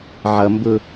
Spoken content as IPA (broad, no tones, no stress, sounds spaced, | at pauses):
ʕ ʌ m b ʊ